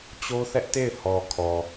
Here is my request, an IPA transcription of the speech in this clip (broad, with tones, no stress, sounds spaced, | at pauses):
t͡ɕ o˦ θ ɛ˦ ʔ t e˦˨ ɪ̯ h ɔ˨ kʰ ɔ˨